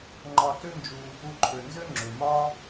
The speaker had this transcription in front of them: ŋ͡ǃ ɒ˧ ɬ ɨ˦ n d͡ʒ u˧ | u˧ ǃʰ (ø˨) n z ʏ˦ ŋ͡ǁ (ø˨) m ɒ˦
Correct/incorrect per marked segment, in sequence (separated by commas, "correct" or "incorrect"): correct, correct